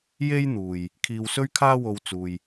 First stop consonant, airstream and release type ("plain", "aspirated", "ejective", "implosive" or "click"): aspirated